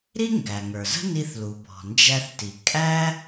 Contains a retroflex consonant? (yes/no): no